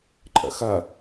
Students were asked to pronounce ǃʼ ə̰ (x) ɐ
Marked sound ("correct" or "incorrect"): correct